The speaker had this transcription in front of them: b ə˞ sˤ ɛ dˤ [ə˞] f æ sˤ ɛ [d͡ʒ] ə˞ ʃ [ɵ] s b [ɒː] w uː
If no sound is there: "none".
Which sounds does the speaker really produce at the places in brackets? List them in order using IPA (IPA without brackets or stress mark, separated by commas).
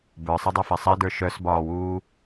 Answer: ə˞, d, œ, ɒː